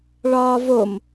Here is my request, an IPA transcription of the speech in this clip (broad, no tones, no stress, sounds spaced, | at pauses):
ɭ ɒː v o m